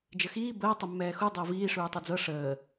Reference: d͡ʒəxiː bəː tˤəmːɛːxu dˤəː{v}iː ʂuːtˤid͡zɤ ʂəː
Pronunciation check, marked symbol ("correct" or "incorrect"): correct